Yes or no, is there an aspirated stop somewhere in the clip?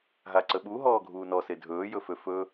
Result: no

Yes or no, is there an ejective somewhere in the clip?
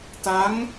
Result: no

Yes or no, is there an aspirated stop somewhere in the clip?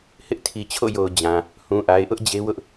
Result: yes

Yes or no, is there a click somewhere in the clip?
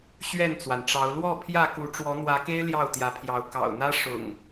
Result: no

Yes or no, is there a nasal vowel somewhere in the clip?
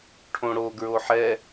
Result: yes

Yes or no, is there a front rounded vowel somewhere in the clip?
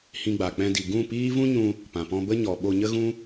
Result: no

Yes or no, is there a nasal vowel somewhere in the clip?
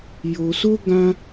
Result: yes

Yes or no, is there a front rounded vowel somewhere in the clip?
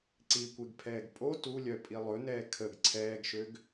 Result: yes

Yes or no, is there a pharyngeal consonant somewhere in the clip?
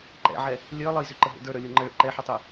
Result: yes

